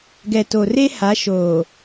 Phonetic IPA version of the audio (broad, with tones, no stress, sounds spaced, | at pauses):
ɡ ɛ˨ t o˨ r e˦ h a˨˦ ʃ oː˨